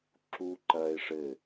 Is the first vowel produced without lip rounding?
no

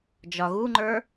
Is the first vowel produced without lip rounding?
no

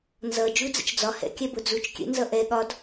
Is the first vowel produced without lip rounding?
yes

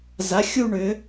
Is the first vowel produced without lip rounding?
yes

